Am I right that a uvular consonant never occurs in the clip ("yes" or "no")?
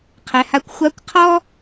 no